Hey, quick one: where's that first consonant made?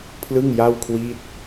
lips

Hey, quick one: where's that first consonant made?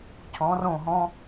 palate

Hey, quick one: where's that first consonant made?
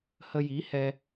throat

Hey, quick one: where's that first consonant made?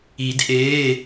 tongue tip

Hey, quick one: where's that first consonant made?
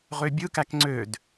uvula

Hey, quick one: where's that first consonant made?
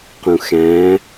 uvula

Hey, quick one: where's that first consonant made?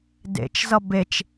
tongue tip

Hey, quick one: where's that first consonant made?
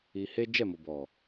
throat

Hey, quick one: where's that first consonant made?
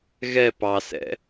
velum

